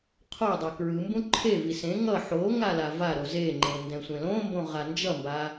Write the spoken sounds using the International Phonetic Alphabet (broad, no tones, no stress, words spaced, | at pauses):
qʰo dˤekɹɯmbũ ǃʰevi sẽ ŋʌ ħoŋa lavaɾo zeŋ͡ǃẽ ndɛ̃sʷẽlõmbõ ʁand͡ʒʌmba